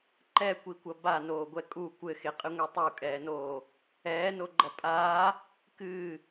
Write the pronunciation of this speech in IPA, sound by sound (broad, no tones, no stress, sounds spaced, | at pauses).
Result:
ǃ ɛ kʷ i kʷ ɐ b a n oː ɡʷ ɛ kʼ u kʷ ɘ x e qʼ ɨ ŋʷ e tˤ u kʼ ɛː n oː | ɛː n o ɡ͡ǃ ɐ pʼ aː | k ɨː